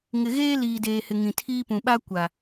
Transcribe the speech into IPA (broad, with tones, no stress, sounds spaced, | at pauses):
ŋ ɪ˨ ɣ eː˦ l iː˨ d eː˨ h ɪ˨ ŋ ĩ˨ tʰ iː˦ p ũ˨ ɓ a˦ kʷ a˨